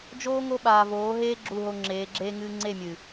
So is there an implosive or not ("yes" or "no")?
yes